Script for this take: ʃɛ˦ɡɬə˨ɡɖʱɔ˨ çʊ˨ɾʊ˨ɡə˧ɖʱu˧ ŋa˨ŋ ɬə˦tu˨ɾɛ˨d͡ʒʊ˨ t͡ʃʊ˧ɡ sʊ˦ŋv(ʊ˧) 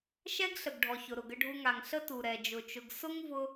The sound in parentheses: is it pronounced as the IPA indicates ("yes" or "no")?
yes